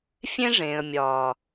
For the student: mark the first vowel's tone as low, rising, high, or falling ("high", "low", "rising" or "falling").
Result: high